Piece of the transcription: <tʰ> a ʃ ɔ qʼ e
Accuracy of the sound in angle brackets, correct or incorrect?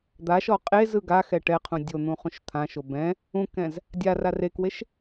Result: incorrect